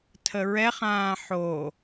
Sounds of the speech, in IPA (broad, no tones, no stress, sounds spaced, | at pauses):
tʰ ə ɹ ɛ χ ãː ħ o